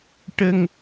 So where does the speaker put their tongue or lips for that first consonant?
retroflex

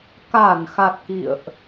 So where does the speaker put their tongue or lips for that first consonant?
velum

